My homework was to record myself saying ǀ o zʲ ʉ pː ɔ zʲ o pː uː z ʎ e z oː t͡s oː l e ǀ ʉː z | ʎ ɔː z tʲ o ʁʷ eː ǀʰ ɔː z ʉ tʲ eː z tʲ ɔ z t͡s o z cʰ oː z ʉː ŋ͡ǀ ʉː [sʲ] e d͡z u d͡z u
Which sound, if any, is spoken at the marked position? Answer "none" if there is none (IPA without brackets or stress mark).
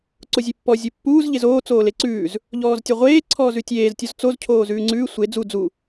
sʷ